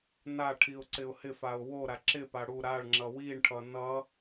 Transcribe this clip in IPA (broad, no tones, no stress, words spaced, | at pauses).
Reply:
naʈʰiʊ̯ ǀɪʊ̯hɪfaʊ̯ woɾa ǁɪpa ɽu ɾaɭŋ͡ǁʌ wiɳʈʰʌ nʌ